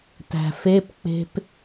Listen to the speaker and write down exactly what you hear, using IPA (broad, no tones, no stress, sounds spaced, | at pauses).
t æ̤ f e p k͡p e̤ p